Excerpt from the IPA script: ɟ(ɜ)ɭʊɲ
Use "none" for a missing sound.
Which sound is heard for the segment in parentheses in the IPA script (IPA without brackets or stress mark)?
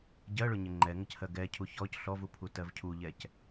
ɜ